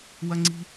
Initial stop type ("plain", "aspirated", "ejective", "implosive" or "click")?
click